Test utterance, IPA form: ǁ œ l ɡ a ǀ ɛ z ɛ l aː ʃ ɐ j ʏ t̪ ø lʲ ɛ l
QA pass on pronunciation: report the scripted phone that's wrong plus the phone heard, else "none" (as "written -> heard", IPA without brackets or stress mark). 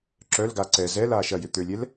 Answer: none